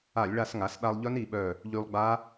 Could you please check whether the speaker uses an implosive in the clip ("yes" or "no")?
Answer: yes